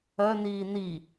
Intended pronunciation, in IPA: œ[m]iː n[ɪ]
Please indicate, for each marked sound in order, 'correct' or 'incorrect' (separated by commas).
incorrect, incorrect